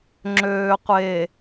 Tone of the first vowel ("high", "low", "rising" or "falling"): low